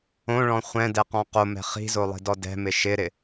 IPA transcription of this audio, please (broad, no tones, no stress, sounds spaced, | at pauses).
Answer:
õ ɭ ɔ̃ χʷ ɛ̃ d ɛ q ɔ̃ q o m ɛ̤ χ i̤ z o lˠ i̤ d ɔ d ɛ̤ m ɪ ʃ ɪ ɾ ɪ